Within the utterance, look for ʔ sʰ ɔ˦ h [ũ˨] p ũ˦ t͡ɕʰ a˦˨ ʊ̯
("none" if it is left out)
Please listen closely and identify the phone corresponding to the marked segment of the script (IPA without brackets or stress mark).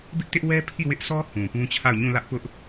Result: ũ˨